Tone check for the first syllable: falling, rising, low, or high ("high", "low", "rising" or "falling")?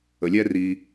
low